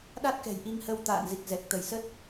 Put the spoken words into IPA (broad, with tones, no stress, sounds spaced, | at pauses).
ɗ a˦˥ t̚ k ɛ̤˨˩ j ʔ i˧ ŋ h ə˧ w t̪ a̰ː˧˨ n z i˨˩ k̚ z ɛ˨˩ k̚ t̪ ə˧˩ j s ə˦˥ t̚